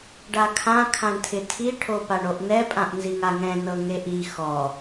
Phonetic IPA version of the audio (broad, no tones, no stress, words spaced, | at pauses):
ɖakʰã kʰãɳtʰɪtʰi ʈʰopaɳoʔnɛ pʼãʔnziŋaŋɛ̃ nɤŋeʔi xɔ